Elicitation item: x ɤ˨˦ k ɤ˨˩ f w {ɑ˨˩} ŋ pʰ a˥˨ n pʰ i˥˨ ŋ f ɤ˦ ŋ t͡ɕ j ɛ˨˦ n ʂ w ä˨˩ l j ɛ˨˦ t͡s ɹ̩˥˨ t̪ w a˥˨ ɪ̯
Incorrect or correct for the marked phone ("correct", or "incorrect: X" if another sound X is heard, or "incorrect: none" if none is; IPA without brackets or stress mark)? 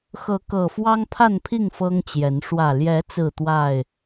incorrect: ɑ˦